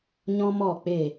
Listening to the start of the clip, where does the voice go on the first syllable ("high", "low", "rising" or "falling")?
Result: high